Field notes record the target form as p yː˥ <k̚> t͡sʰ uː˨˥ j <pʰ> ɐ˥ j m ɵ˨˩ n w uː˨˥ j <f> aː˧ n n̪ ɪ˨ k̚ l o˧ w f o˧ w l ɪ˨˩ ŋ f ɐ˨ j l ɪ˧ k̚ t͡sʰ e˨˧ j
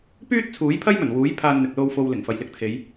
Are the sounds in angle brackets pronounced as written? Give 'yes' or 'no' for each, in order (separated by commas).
no, yes, no